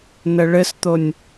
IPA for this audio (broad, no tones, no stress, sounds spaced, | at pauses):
n ə ɭ ɘ s t̪ o nʲ